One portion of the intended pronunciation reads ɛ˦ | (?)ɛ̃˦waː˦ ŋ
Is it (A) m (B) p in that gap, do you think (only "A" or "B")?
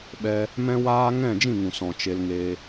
A